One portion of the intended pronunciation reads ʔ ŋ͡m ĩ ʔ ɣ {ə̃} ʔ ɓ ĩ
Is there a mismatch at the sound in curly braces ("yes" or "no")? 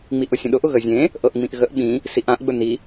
yes